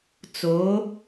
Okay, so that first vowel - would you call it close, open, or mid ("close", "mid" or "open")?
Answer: mid